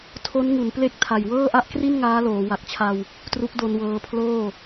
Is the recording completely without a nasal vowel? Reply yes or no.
yes